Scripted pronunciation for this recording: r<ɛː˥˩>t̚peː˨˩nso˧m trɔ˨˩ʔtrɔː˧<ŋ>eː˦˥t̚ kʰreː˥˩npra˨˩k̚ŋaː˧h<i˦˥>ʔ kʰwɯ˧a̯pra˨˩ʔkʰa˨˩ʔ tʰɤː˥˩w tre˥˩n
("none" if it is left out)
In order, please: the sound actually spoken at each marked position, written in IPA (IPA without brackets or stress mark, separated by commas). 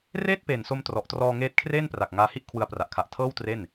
eː˥˩, ŋ, i˥˩